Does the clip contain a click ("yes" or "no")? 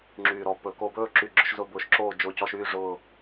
yes